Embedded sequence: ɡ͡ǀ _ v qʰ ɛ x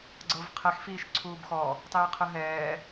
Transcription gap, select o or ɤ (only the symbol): ɤ